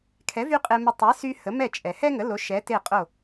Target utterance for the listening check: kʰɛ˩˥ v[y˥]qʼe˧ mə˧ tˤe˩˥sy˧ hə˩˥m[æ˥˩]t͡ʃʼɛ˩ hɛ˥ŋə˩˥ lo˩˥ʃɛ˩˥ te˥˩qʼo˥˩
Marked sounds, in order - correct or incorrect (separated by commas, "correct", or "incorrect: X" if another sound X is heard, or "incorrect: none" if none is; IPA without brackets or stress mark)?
correct, incorrect: ɛ˥˩